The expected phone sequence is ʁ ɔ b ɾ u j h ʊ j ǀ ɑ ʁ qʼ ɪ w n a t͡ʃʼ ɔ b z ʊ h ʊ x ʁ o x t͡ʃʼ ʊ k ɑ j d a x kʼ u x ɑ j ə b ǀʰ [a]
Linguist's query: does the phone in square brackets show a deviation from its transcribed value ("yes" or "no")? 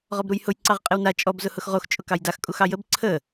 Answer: yes